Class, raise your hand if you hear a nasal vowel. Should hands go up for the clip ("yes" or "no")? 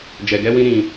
yes